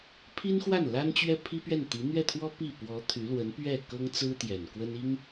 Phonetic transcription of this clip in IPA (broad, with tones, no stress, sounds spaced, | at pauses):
pʰ i˥ n x w a˥˩ n l a˥ n t͡ɕ ɥ ɛ˥ pʰ i˥ p ɥ ɛ˥˩ n t̪ i˧˥ n̪ ɥ ɛ˥˩ t̪ʰ w ɔ˥ p i˥˩ p w ɔ˧˥ t̪ʰ y˧˥ l w ə˧˥ n p ɥ ɛ˥˩ k ɤ˥ ŋ t͡s ɹ̩˥ t̪ j ɛ˨˩ n k w ə˥ n i˥ ŋ